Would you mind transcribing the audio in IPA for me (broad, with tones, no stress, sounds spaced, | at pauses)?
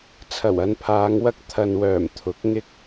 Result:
t͡sʰ ɐ˨˩ w ɐ˨˧ n pʰ aː˨˧ ŋ w ɐ˥ k̚ t̪ʰ ɐ˨ n w œː˨˩ m t̪ʰ ʊ˨˥ k̚ ŋ ɪ˧ k̚